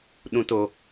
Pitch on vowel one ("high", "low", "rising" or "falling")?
low